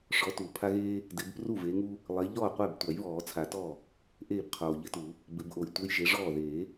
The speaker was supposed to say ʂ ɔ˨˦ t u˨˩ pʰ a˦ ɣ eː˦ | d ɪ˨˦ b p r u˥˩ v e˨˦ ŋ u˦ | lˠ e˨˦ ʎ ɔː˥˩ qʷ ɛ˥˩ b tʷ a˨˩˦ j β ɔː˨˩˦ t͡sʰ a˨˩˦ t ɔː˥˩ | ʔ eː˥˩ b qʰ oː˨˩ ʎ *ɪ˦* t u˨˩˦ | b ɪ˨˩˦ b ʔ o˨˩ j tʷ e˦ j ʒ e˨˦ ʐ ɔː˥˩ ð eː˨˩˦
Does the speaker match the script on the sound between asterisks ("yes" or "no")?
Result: yes